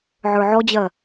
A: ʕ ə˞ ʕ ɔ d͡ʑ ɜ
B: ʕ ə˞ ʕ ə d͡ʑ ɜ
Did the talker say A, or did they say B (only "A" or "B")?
A